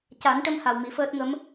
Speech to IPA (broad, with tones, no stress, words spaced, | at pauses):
ca˨˩˦nʈə˧m ha˨˩wmi˨˩˦fəː˦˥t̚ŋə˧˥m